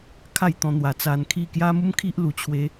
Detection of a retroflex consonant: absent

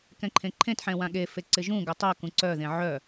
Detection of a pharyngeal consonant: present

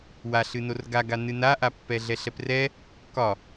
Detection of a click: absent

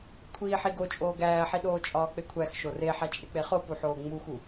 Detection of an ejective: present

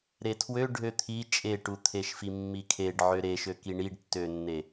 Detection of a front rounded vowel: present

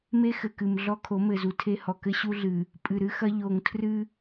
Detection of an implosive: absent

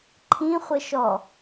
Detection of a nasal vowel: present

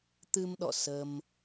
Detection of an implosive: present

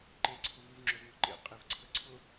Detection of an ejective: present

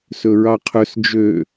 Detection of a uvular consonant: present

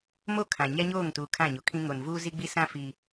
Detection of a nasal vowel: present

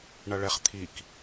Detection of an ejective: absent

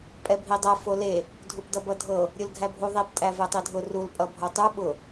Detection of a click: absent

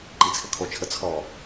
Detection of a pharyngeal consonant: absent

